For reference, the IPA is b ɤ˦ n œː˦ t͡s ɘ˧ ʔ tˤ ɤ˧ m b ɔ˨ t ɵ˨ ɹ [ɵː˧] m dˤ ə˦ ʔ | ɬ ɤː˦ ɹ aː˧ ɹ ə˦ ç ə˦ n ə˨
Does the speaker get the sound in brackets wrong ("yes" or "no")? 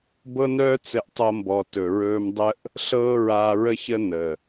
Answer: no